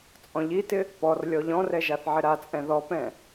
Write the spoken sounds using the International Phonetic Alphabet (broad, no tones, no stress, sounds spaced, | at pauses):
t͡sʼ ɔ̃ ʎ i t ɪ | p ɔ r lʲ ɔ ʎ ɔ̃ r ɛ ʒ a θ ʕ ɪ ɾ a t͡sʼ ɛ̃ ð ɔ p ɛ̃